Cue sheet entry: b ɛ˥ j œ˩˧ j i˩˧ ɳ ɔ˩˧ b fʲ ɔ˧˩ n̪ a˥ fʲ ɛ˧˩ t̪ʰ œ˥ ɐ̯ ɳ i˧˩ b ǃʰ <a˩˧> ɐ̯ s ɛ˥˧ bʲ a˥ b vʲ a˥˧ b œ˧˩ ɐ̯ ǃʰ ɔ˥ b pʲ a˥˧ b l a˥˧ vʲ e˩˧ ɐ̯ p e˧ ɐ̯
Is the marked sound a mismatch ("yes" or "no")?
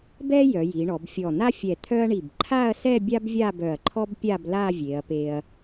yes